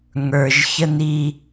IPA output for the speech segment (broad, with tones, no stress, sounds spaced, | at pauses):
ŋ ə˞˩ ʒ ç ə˧ n i˧